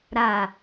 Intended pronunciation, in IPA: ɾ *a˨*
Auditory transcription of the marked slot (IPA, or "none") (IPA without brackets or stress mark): a˨